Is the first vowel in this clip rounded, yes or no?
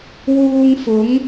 yes